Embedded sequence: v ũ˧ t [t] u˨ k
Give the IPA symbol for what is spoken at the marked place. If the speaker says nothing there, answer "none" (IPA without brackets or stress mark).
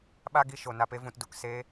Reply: d